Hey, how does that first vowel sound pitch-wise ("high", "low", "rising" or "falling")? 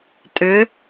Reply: rising